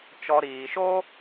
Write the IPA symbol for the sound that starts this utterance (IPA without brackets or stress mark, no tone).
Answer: t͡ʃ